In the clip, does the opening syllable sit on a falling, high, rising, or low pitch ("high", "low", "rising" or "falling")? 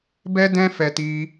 high